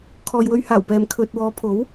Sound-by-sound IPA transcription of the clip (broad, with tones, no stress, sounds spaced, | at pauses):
kʰ ɔː˨ j w ɵ˧ ɥ h aː˨˩ w p ɛː˨ m kʰ ɵ˨ t̚ w ɔː˨˧ pʰ o˨˥ w